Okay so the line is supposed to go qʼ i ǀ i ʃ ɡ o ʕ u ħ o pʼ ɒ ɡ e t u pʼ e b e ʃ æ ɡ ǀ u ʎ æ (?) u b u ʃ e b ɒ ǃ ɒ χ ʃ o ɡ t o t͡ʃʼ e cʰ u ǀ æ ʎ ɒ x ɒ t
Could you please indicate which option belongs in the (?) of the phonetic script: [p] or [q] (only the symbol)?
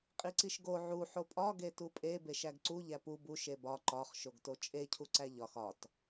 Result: p